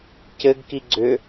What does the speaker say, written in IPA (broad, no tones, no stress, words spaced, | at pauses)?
cɘɡki ɡ͡ǀʏ